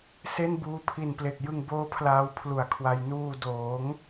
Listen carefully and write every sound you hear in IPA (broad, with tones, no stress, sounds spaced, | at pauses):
s e˥˩ n b uː˧ pʰ i˨˩ n p l e˨˩ k̚ j ɯ˧ ŋ b oː˦˥ pʰ l aː˧ w pʰ l u˨˩ a̯ kʰ w a˧ j n uː˧ d oː˩˦ ŋ